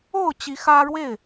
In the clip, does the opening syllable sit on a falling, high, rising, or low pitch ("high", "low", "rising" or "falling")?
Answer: falling